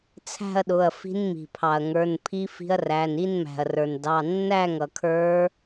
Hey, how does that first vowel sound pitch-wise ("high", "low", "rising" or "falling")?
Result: falling